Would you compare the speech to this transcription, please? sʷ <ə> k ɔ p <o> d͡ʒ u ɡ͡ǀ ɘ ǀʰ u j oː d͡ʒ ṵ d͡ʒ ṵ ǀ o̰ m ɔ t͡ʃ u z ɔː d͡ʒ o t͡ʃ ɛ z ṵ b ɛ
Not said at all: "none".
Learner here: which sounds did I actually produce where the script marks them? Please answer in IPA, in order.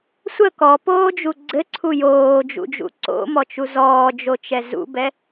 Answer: ə, oː

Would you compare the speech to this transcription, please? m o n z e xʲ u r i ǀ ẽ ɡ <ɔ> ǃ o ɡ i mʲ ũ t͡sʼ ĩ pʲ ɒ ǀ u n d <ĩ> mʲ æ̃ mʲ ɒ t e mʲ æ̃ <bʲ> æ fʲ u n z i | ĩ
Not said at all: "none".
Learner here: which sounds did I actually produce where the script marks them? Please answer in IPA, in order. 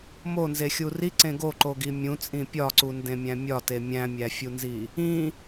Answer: o, ẽ, mʲ

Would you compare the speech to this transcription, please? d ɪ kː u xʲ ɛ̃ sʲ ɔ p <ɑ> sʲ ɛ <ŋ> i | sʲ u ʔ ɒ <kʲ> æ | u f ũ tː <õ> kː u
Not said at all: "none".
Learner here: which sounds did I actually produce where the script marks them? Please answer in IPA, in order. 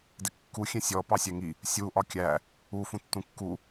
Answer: ɑ, ŋ, kʲ, ũ

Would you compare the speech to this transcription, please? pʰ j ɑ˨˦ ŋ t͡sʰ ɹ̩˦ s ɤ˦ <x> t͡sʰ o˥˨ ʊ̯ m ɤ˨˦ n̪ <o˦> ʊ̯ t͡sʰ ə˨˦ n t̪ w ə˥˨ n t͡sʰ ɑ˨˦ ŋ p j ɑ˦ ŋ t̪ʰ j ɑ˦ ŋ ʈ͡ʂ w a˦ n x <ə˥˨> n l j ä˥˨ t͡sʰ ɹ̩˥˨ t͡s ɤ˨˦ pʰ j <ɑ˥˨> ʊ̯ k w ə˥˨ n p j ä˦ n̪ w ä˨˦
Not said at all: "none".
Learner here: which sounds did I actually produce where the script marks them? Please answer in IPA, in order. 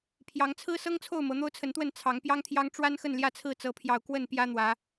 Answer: ŋ, o˦, ə˥˨, ɑ˨˩

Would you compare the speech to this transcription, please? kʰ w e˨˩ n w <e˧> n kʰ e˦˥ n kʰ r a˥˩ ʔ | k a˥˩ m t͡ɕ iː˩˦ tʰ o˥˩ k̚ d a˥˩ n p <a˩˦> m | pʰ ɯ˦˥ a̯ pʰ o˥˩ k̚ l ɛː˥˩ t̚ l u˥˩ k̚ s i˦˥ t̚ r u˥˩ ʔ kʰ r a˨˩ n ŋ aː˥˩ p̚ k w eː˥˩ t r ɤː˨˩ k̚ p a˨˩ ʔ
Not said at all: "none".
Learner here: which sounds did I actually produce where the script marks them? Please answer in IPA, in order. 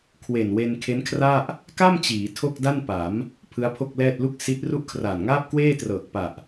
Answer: e˧, a˩˦

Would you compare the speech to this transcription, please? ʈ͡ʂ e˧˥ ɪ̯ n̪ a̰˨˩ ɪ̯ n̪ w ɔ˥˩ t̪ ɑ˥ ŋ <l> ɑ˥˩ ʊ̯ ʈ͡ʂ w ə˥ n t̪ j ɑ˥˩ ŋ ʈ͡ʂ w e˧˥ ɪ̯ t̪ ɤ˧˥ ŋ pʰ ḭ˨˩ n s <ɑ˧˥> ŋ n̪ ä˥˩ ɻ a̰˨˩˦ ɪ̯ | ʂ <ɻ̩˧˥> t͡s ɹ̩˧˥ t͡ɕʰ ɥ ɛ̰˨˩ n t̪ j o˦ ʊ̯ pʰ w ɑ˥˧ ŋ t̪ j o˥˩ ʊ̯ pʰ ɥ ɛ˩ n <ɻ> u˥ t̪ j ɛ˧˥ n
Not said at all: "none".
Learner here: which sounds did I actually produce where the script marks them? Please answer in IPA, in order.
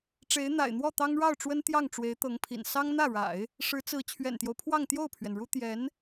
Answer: ɻ, ɑ˥, ɻ̩˧˥, ɻ

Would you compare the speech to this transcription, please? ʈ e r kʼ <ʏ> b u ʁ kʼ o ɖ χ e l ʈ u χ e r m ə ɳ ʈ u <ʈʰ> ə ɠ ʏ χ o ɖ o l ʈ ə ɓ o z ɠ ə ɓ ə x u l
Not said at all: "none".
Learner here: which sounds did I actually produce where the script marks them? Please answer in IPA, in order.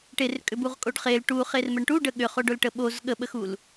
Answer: ʏ, ɖ

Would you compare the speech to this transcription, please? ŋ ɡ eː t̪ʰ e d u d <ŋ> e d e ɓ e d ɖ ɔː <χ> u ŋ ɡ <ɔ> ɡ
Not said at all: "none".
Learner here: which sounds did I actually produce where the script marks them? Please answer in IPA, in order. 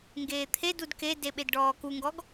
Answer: k, k, ɔ

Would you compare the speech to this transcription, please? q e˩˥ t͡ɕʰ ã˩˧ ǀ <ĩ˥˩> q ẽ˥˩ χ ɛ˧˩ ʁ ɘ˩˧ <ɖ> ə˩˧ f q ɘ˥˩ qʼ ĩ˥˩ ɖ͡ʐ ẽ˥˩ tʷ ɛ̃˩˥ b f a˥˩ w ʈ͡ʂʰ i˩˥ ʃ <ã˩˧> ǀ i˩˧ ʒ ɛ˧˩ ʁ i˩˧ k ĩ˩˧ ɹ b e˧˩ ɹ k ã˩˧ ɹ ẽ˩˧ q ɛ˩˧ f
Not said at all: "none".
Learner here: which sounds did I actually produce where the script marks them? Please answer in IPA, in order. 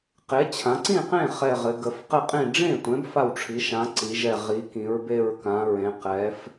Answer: ĩ˥˩, ɡ, ã˩˥

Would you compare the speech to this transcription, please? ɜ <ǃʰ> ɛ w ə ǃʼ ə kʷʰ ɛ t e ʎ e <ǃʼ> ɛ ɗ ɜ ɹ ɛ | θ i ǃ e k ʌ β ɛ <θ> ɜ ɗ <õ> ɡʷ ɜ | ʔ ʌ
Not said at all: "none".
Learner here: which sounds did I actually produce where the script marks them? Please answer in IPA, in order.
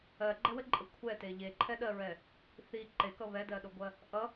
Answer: ɡ͡ǃ, ǃʰ, d, o

